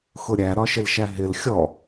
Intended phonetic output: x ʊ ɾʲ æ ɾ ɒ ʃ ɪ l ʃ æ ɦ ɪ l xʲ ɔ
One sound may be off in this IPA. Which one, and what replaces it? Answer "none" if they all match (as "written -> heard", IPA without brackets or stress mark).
none